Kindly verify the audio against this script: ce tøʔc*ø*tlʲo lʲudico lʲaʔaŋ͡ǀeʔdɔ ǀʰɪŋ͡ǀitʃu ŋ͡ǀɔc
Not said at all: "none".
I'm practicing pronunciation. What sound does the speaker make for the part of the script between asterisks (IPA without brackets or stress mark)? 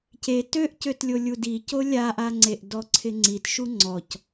ø